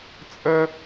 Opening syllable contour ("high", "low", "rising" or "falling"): high